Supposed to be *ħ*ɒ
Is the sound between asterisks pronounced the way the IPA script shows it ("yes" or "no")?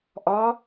no